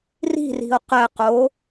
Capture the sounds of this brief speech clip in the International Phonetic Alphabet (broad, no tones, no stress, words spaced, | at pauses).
ri̤ri̤o̯ qɛqo